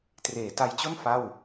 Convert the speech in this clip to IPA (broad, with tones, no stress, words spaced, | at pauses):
treː˩˦ta˧jt͡ɕo˥˩n fa˥˩w